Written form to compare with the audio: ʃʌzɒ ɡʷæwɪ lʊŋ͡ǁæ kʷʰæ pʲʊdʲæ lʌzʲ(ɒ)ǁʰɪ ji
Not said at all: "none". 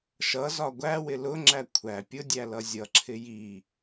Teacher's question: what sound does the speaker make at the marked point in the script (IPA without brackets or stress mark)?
ʌ